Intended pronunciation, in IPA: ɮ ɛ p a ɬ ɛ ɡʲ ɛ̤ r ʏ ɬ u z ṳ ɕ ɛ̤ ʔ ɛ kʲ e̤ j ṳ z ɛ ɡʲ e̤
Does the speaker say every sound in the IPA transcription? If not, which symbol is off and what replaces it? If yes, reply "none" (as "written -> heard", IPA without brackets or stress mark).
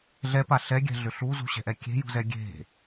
r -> ɮ